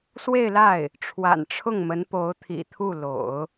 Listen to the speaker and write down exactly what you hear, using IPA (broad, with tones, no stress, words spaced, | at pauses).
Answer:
swe˥˧ɪ̯la˥˩ɪ̯ | ʈ͡ʂʰwa̰˨˩nʈ͡ʂʰʊ˥˩ŋmə˧˥npo˧˥ʊ̯ t̪ʰḭ˨˩t̪ʰu˥˩lo̰˨˩˦ʊ̯